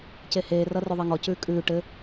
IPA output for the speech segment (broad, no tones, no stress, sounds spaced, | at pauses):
c e h eː r ʌ r ʉ ðˤ e ŋ ɔ c ʉː kʼ ʉː ʈ ɘ